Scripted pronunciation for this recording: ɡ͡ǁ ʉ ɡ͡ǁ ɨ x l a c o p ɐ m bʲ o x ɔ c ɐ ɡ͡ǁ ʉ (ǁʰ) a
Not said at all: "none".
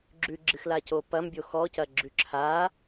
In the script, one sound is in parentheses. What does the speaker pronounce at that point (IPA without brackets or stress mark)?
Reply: ǁʰ